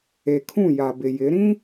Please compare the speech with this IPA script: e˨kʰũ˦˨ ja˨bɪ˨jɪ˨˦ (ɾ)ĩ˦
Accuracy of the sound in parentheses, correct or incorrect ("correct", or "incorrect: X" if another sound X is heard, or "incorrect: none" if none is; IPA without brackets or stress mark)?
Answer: correct